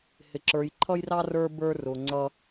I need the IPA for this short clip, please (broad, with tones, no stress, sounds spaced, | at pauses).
h ɪ˨ ǁ ə˞˨ j ǃʰ ʌ˦ j r ɑ˦ r ə˞˦ b ə˞˦ r ʊ˨ ŋ͡ǀ ʌ˦